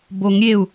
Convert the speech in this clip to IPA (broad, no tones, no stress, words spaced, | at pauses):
boŋ ɾʲeu̯